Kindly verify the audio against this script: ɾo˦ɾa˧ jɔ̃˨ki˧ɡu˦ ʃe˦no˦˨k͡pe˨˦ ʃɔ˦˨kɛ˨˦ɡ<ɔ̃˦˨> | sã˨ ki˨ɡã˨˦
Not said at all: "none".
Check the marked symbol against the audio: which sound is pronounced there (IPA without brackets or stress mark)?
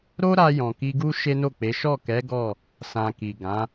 ɔ˦˨